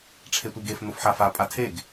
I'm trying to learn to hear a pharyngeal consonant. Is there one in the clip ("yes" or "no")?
yes